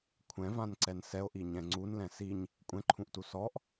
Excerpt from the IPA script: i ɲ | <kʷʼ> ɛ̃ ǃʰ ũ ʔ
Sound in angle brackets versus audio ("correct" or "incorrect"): correct